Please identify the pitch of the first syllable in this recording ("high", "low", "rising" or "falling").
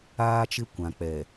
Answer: high